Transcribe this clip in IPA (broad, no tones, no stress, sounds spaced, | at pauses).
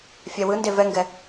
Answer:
fʲ æ w ɯ n d e v ɛ ŋ ɡ ɛ